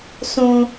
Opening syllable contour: low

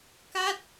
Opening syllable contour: falling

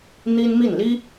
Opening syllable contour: high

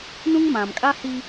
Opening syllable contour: high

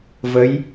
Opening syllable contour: rising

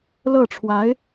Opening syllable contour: falling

